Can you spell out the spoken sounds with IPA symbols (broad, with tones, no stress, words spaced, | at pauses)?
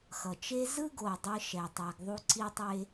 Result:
xʌ˩t͡ʃe˥ zɯ˥ɡo˩ dˤɯ˧ʃɛ˩tˤɛ˩ɡ ðˤu˧ǀi˧tˤe˧